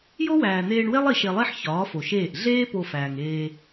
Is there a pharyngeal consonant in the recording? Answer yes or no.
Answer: yes